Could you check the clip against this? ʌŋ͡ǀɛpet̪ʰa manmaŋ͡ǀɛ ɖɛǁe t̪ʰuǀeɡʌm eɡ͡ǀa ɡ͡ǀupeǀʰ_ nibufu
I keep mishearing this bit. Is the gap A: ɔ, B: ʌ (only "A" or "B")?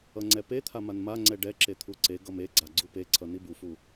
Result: B